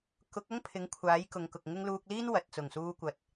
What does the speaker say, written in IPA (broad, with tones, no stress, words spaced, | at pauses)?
kʊ˨˥k̚ɐ˥ŋ pʰɪ˨˥ŋkʷʰaː˨˥jkʊ˨ŋkʊ˨k̚ ŋɪ˥ŋ luː˧k̚liː˥n wɐ˨t̚t͡sʊ˨˩ŋ suː˧kʷɐ˨t̚